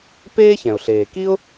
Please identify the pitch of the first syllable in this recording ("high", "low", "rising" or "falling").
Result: high